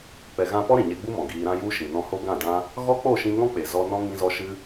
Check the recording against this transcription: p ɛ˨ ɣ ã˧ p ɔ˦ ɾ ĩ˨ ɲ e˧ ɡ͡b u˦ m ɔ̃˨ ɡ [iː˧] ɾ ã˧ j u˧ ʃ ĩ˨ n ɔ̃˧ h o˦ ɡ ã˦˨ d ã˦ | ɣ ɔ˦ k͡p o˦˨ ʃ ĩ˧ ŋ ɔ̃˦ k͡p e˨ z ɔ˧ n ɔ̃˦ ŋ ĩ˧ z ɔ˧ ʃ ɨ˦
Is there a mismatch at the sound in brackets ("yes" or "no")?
no